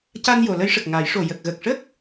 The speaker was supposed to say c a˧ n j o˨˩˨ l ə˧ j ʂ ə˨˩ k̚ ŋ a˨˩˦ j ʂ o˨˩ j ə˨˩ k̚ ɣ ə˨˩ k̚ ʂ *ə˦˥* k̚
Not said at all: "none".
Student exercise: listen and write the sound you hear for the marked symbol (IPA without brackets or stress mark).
ə˦˥